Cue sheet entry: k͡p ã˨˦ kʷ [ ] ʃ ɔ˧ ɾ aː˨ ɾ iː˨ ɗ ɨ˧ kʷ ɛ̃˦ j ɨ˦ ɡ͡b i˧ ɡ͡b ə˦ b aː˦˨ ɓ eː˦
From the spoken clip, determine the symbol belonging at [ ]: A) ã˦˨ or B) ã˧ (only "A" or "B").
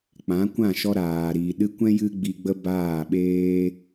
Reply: A